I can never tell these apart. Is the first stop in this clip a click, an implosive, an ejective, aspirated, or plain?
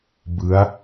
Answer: plain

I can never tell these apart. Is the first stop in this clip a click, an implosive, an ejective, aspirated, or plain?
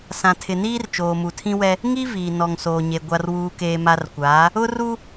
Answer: aspirated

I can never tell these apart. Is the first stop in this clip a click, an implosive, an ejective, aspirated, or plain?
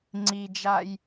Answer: click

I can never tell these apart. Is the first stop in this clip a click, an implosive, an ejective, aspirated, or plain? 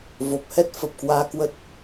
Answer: plain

